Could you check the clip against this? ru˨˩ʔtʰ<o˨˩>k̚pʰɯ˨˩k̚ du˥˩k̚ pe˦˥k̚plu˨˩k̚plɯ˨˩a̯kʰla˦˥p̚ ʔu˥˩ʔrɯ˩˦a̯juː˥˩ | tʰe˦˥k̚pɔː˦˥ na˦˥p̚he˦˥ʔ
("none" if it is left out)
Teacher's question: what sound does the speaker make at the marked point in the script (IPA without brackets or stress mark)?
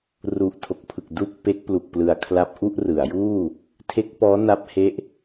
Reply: o˨˩